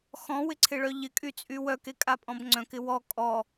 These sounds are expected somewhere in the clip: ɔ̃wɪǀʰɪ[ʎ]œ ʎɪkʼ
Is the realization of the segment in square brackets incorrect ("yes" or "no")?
yes